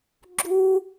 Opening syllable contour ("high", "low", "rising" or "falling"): high